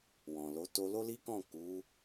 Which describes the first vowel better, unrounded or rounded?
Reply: rounded